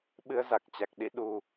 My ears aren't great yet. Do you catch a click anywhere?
no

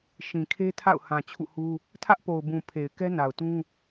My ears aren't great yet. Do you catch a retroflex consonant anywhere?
no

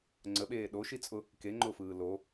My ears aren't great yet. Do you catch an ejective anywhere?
yes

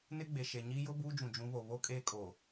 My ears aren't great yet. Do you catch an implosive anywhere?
no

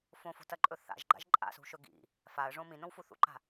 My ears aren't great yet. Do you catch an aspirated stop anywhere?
no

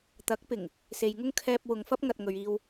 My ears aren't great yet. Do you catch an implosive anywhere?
no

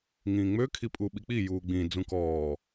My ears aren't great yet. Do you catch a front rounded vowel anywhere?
yes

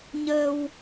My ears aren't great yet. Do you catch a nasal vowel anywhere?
no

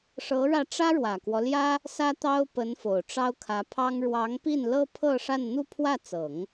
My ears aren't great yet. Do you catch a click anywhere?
no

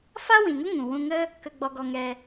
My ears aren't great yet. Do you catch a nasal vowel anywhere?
yes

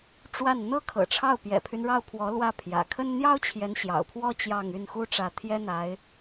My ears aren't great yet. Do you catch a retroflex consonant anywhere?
yes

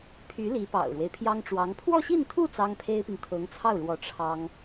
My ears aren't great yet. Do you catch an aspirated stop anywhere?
yes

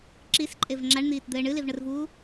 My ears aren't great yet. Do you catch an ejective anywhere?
yes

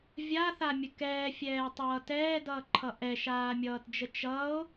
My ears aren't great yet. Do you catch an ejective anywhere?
no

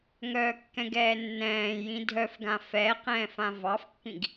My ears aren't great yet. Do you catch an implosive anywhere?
no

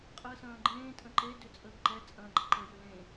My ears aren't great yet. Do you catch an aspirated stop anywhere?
no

